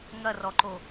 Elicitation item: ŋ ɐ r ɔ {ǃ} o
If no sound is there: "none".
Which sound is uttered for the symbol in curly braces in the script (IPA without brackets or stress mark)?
ǃ